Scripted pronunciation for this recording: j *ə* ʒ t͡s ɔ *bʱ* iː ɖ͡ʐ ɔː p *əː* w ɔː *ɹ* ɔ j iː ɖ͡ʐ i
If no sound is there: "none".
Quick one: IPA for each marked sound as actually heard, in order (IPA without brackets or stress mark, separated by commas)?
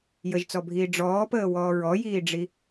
ə, bʱ, əː, ɹ